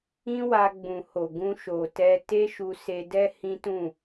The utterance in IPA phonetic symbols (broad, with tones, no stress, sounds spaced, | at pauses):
ĩ˦ w a˧ ɡ͡b ũ˨ h o˨ ɡ ũ˧ ʃ o˨ t ɛ˧ t e˦ ʃ u˧ s e˧ d ɛ˦ h ĩ˦ t ũ˦˨